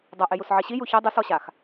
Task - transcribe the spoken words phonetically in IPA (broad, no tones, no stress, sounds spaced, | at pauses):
dˤ ɐ ʔ e j u s ʕ i ɕ i j u ç ɛ dˤ ɨ s ɔ ɕ a x